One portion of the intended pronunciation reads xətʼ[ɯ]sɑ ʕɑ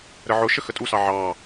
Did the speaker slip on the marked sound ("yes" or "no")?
yes